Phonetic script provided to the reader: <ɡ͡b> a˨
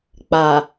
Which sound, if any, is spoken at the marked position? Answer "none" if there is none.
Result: k͡p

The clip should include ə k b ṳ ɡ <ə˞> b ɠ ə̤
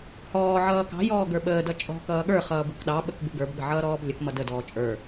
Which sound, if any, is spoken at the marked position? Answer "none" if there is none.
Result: ə˞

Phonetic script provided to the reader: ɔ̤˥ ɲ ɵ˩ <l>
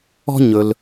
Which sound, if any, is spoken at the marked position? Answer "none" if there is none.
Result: l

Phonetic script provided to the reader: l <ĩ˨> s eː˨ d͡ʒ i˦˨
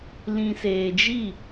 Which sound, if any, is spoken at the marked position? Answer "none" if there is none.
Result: ĩ˨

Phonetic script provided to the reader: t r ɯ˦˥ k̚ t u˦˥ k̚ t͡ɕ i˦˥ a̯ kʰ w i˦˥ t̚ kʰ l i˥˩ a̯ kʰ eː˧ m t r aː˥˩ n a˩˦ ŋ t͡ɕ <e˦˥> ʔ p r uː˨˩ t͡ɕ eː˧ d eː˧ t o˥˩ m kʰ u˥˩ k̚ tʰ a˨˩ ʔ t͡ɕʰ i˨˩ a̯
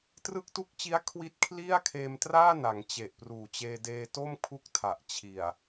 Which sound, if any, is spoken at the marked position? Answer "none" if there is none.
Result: e˨˩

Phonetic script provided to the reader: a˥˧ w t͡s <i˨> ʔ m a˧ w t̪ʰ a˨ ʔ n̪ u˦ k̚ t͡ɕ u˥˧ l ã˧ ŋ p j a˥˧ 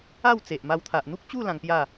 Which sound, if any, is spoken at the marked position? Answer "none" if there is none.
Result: e˨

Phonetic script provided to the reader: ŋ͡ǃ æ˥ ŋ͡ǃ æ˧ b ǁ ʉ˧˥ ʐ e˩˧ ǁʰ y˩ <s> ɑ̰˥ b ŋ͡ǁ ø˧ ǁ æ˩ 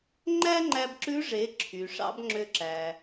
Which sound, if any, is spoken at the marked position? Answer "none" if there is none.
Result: ʂ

